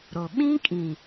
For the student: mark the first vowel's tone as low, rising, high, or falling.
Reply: low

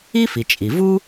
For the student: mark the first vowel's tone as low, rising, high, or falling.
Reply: high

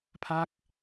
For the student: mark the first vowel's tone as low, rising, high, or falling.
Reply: falling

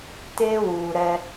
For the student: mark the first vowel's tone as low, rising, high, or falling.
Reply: high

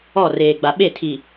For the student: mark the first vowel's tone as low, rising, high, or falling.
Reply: falling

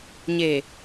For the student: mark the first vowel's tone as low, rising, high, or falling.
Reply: low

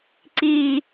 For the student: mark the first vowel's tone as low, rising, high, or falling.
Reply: low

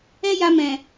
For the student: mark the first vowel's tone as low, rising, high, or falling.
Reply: high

